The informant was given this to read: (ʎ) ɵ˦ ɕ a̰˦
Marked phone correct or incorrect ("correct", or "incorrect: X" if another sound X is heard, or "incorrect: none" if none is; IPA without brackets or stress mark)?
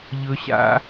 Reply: correct